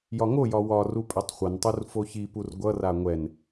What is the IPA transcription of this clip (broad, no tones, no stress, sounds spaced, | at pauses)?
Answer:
j ɒ ŋ o j ɒ w ɒ r u pʼ ɛ tˤ χʷ ʌ n tˤ u r f o ç i p u r ɡʷ ʌ r a ŋʷ ɛ n